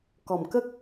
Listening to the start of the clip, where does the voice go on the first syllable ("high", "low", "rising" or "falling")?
low